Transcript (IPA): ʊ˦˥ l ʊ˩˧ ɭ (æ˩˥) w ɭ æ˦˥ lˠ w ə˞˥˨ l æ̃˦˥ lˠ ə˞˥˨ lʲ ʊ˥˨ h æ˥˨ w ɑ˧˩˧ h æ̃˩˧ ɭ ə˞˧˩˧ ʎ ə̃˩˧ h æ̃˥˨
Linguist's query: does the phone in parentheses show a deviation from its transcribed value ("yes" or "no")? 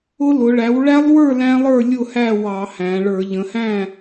no